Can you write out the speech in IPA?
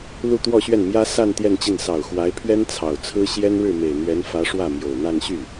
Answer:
lu˥˧t̪wɔ˥˧ɕɥɛ˥˩nmjä˥ sa˥˧n t̪jɛ˥˧nt͡ɕi˥˩n sɑ˨˩ʊ̯ xwa˧˥ɪ̯pʰɥɛ˥n t͡sʰɑ˨˩ʊ̯t͡sʰɹ̩˥ ɕjɛ˥nɻɻ̩˥˩me˨˩ɪ̯n̪ɥɛ˧˥n fä˧˥ ʂwä˥˩mjo˨˩ʊ̯n̪a˥˧n ɕy˥˩

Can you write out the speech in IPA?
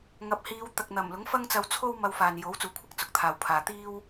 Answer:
ŋɐ˨p̚hiː˨˧w t̪ɐ˨k̚n̪ɐ˨˩mlʊ˨˥ŋ fɐ˥ŋt͡sɐ˧wt͡sʰo˥w mɐ˧wfaː˨njo˨˥w t͡suː˨˥kʷʰɪ˥k̚ t͡sʊ˨k̚t̪ʰaː˨wpʰaː˨ t̪iː˥w

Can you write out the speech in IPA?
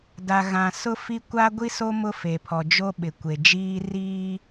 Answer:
da˨ɣã˨ sʊ˦fi˦ kʷa˦ɡʷi˦so˦ mʊ˦fe˨pʰɔ˨d͡ʒo˦ ɓɪ˨kʷe˨d͡ʒiː˦ riː˦

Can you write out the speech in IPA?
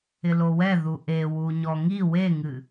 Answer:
ɪlowɛ ðuʔe wuɲɔŋi weŋɨ

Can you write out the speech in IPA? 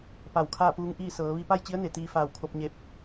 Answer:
pa˧˩wkʰaː˥˨puː˧˥ŋʔiː˥˨ sɤː˩˧ ʋi˧pa˥˨jt͡ɕi˧˥ə̯ne˩ t̪iː˧faː˧˩wkʰo˧p̚ɲe˧p̚

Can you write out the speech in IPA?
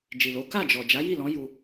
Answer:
d͡ʒi˨lo˨˦ ka˦˨d͡ʒɔ˨ d͡ʒa˨˦ji˦˨lɔ̃˨˦ ju˧

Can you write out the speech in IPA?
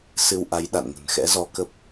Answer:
sɨ˧wʔa˨˦jɗa̰˧˨nŋə̤˨˩n xɛ̰˧˥zɔ˨˦kə˦˥p̚

